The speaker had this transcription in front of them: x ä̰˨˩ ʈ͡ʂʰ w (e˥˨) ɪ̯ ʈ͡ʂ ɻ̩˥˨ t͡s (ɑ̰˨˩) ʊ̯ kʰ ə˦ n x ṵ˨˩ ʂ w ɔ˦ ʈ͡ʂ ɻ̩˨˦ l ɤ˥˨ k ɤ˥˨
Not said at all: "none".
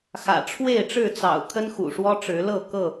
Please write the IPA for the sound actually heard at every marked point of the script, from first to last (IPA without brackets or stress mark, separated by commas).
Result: e˥˨, ɑ̰˨˩